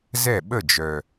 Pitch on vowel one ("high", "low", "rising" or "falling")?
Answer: falling